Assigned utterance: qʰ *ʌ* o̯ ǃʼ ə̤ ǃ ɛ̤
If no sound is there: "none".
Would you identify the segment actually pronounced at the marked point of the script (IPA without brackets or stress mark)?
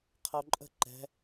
ʌ